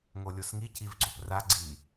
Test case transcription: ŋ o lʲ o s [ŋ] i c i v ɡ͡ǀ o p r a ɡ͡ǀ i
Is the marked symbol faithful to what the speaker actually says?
yes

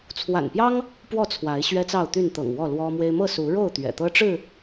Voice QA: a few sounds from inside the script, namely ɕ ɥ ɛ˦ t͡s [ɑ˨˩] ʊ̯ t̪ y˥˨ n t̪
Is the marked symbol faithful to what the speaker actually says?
no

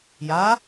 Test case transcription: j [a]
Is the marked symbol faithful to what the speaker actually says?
yes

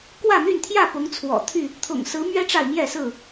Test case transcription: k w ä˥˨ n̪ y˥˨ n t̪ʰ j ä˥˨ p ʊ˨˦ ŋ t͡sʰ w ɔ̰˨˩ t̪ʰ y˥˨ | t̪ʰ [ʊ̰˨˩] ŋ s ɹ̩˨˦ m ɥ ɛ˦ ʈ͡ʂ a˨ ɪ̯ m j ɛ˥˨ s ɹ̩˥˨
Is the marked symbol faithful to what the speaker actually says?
yes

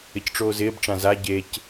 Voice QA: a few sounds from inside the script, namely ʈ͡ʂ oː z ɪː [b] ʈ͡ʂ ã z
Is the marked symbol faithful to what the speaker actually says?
yes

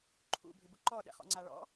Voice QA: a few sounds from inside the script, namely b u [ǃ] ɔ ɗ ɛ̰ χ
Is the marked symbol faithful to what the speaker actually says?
yes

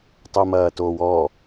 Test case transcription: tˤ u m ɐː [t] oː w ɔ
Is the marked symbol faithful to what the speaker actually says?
yes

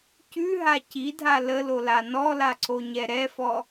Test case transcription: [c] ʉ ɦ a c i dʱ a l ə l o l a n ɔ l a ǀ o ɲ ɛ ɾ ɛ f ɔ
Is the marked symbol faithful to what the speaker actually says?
yes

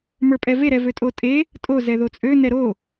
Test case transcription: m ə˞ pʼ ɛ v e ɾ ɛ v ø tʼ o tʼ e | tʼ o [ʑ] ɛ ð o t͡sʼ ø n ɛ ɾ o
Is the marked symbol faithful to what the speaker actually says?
no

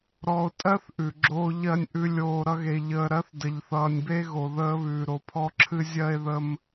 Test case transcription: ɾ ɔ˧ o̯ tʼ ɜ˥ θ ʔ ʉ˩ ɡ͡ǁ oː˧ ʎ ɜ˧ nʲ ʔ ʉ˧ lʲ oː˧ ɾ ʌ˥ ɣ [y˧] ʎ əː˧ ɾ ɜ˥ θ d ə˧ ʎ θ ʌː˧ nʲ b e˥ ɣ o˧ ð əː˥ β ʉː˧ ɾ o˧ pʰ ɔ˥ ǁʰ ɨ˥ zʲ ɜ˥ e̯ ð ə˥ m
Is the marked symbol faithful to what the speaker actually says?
no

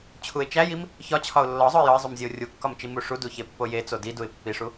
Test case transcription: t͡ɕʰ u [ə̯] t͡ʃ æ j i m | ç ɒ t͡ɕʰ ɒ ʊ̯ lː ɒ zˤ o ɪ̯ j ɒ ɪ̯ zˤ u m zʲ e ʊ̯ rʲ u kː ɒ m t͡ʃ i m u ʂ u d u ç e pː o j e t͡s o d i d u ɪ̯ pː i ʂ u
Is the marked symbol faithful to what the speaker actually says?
no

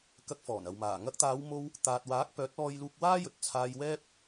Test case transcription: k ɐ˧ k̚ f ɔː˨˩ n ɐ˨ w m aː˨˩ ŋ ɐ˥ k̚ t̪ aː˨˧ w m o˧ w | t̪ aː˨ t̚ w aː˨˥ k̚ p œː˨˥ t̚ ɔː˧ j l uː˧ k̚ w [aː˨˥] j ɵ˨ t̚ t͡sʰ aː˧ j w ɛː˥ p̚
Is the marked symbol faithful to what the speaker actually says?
no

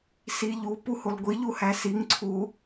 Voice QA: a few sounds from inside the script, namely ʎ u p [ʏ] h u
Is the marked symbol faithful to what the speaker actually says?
no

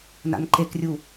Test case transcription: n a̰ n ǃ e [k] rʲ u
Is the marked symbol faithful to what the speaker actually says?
yes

